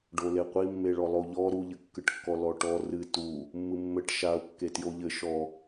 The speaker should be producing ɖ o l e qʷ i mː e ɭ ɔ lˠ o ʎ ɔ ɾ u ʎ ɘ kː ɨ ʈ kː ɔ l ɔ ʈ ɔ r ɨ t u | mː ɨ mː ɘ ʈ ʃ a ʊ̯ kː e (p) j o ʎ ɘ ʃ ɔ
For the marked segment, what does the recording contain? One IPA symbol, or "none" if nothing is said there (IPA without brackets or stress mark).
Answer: t